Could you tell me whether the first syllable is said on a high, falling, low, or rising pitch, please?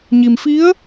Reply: low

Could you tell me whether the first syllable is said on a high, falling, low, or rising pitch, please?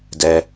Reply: high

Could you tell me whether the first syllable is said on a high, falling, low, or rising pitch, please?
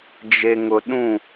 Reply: low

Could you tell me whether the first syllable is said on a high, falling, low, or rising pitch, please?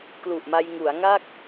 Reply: low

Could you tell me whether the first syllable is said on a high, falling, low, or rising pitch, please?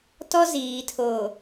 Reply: high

